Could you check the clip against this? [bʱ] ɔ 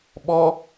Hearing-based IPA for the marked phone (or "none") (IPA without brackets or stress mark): ɓ